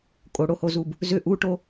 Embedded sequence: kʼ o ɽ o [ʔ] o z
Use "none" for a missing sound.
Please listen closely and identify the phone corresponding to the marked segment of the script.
h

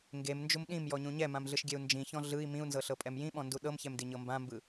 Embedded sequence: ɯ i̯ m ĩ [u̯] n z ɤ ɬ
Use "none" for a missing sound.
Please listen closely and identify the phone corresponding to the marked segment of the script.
u̯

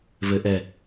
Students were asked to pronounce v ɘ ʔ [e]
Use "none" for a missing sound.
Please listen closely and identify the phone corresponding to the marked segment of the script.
ɛ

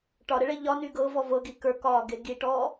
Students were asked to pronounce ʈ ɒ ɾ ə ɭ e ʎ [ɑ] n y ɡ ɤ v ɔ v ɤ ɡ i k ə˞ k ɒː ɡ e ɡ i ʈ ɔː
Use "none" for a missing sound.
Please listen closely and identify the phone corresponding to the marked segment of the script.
ɒ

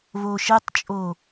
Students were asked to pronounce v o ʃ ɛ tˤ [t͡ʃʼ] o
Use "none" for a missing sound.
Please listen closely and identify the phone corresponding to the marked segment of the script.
t͡ʃʼ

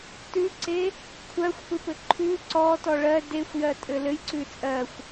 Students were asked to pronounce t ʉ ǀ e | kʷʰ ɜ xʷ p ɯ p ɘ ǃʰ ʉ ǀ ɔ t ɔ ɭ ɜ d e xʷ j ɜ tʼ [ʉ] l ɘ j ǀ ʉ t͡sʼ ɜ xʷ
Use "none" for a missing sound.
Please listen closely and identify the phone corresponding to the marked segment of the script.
ɘ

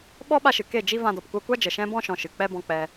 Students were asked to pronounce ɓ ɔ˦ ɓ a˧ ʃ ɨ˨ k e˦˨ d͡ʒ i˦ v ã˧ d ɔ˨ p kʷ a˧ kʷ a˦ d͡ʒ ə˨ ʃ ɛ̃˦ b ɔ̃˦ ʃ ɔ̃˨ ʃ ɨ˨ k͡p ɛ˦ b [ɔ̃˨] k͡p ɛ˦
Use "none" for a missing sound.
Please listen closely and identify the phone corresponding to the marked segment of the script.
ɔ̃˦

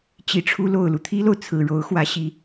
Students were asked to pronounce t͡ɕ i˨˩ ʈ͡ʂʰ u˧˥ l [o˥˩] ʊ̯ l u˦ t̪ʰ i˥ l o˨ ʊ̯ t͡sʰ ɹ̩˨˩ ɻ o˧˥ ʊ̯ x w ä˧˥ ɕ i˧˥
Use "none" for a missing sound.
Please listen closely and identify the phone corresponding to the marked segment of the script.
o˨˩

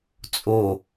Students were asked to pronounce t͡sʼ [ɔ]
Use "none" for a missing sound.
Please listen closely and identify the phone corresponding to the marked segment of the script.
o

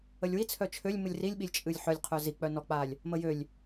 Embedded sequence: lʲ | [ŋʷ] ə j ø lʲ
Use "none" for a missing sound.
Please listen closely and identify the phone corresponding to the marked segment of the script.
m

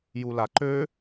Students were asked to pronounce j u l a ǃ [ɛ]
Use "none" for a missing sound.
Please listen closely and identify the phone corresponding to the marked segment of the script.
ø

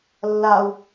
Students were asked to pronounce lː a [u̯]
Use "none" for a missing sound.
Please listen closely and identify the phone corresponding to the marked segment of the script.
u̯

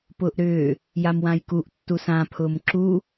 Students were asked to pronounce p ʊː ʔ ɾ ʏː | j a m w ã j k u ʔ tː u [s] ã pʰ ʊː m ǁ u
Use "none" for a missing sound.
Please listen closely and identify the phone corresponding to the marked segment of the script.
s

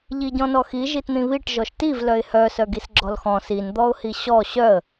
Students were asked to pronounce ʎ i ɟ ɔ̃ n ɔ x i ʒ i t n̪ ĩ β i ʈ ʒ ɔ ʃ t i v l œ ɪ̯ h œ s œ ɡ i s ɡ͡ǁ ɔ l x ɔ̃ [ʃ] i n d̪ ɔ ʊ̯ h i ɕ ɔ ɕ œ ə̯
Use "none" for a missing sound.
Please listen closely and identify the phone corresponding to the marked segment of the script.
s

